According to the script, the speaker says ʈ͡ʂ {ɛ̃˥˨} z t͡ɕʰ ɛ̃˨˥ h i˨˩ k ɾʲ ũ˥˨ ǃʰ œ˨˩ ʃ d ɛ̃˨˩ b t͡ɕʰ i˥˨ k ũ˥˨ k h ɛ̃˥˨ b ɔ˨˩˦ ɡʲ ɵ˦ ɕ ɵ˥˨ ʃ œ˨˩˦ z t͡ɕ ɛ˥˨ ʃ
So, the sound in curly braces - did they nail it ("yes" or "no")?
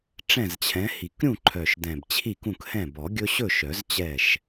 yes